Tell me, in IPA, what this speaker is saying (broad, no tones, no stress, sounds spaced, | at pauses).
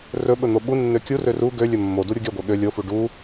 r ɵ ɓ ɵ n̪ o ɓ u nː ø kʲ u r ø r u ɡ ø lʲ ɵ mː o d u ɾʲ u ɡʲ œ ɡʷ ɛ ɠ ø lʲ o f u ɖ u